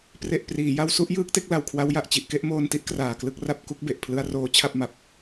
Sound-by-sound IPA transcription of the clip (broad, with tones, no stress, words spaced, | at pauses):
pre˨˩ʔpriː˩˦ja˧wsu˥˩ʔ jɯː˦˥k̚te˦˥k̚ la˨˩wkʰwa˦˥wja˨˩ʔ t͡ɕi˨˩ʔke˦˥ʔmoː˧nti˦˥ʔ kraː˨˩klɯ˥˩k̚ra˥˩p̚ ku˥˩k̚be˨˩ʔ pʰlɯ˧a̯roː˧ t͡ɕʰa˥˩p̚ma˨˩p̚